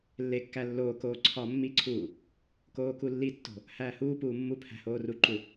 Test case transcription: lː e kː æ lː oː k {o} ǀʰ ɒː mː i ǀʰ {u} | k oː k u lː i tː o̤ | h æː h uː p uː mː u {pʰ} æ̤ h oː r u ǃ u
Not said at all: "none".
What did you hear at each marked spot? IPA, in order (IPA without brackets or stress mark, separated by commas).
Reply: oː, uː, pʰ